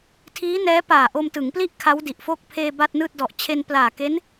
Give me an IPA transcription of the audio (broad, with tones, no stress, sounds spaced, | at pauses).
tʰ iː˦˥ n ɛː˦˥ p aː˨˩ ʔ o˧ m t ɯ˩˦ ŋ p l i˥˩ ʔ kʰ a˦˥ w d i˨˩ ʔ f o˥˩ k̚ pʰ eː˧ b a˥˩ t̚ n ɯː˥˩ t̚ d ɔ˨˩ ʔ t͡ɕʰ e˧ n p l aː˨˩ k e˦˥ n